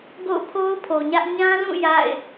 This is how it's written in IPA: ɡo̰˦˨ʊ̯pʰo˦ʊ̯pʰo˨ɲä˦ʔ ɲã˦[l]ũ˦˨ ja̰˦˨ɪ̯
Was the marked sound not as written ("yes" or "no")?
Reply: no